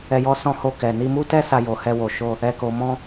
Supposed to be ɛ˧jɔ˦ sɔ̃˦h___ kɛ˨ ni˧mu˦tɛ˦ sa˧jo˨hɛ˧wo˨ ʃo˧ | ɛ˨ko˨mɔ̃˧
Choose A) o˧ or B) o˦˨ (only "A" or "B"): A